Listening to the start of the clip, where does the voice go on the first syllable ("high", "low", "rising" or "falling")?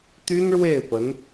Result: high